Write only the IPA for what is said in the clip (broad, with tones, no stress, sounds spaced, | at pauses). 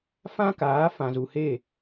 f ã˦ k aː˨˦ f ã˨ z u˨ h e˦˨